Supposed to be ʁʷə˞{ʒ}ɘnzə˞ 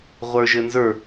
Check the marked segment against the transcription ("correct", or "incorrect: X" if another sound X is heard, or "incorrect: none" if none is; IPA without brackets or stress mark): correct